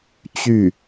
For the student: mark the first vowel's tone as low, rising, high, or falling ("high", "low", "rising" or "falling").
falling